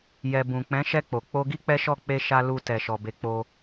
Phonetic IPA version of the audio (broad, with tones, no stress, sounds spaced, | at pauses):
j ɛ˨ b ũ˨ k͡p ɛ̃˨˦ ʃ ɛ˧ k͡p o˨ k͡p o˧ ɡ i˦ k͡p ɛ˦ ʃ ɔ˦˨ k͡p e˧ ʃ a˧ l u˧ t ɛ˨ ʃ ɔ˨ b e˨˦ k͡p o˧